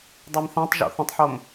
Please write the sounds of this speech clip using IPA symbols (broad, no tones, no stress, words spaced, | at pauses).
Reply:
dˤɛmθæ̃tˤʒo̰ θə̃tˤħom